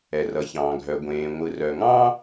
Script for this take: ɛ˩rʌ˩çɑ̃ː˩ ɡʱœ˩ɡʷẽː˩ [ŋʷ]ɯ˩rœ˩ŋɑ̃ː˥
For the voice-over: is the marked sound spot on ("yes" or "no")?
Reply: yes